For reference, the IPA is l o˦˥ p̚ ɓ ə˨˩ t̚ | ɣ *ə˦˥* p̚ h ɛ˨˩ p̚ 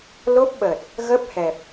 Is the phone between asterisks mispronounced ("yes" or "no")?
no